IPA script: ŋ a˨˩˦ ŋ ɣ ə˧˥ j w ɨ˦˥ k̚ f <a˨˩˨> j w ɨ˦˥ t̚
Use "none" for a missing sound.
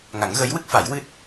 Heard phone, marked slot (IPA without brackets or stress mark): a˨˩˦